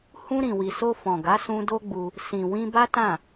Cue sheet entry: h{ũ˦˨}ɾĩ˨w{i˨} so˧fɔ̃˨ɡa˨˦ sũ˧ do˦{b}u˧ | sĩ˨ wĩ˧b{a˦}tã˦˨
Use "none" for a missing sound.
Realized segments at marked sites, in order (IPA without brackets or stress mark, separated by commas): ũ˧, i˨, ɡ͡b, a˦